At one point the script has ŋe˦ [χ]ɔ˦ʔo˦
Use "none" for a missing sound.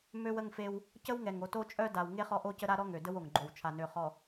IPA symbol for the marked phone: χ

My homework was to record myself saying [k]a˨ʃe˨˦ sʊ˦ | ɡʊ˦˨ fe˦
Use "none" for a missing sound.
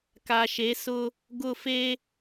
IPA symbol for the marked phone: k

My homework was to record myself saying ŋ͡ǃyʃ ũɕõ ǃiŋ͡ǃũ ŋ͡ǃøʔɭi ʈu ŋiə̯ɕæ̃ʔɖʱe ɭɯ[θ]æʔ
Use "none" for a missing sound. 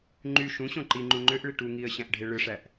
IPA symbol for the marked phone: ʂ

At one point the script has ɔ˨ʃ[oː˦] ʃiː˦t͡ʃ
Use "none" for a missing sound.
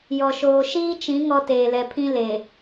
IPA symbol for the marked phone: oː˨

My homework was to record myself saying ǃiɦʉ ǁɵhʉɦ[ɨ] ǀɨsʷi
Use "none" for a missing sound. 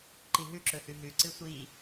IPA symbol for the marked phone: ʉ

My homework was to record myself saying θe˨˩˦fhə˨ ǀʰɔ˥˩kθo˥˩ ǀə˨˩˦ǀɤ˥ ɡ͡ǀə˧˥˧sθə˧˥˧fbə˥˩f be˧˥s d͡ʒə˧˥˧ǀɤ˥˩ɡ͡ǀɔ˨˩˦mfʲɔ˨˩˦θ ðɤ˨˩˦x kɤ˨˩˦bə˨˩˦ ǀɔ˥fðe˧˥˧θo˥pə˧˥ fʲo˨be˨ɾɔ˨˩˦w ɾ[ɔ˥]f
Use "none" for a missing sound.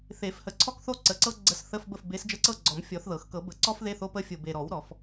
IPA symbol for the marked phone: ɔ˨˩˦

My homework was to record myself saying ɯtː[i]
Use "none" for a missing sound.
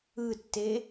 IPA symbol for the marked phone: e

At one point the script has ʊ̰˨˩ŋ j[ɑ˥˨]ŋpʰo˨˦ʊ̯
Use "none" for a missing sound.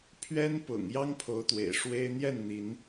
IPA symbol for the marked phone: ɑ˦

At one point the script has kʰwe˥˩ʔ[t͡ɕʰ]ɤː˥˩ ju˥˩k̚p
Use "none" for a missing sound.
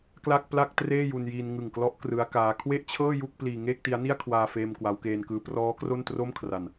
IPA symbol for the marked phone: t͡ɕʰ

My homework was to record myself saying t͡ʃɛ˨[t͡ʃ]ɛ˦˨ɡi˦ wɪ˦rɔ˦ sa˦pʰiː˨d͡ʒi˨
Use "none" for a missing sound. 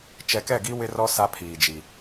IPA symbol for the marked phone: k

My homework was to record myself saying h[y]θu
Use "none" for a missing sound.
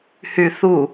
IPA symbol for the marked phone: y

